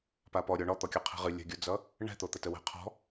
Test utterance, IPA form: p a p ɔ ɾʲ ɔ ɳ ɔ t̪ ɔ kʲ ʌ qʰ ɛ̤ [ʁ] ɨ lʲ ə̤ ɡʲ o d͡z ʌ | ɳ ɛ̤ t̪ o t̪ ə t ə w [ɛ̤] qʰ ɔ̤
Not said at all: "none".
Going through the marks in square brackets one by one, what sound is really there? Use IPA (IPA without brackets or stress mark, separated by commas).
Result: ʁ, ɛ̤